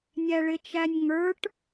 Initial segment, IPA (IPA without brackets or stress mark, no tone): nʲ